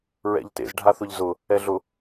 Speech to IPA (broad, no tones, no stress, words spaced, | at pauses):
ɹɛ̰ʎtḛz ɖʱaθʊʎzʊ | ɛɮʊ